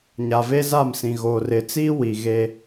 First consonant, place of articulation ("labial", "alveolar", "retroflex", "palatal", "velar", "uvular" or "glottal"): palatal